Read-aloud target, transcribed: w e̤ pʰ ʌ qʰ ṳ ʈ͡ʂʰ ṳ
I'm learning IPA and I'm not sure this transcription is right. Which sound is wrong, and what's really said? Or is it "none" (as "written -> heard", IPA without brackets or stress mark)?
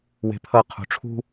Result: none